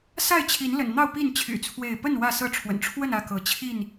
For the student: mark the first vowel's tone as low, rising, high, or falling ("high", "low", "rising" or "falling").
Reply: falling